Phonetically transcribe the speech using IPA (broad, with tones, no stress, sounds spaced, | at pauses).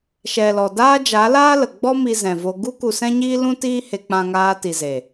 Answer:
ʃ ɛ˨ l ɔ˨ d aː˦ d͡ʒ a˨˦ l aː˦ l ə˨ ɡ͡b ɔ˦ m i˧ z ɛ̃˨ v o˧ ɡ u˦ k u˧ s ɛ̃˦ ɲ iː˦ l ũ˦ t iː˦ h e˧ k͡p ã˧ ŋ aː˧ t i˨ z e˨